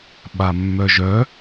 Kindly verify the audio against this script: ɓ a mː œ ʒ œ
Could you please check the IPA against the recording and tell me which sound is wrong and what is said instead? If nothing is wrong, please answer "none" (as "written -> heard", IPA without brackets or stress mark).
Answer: none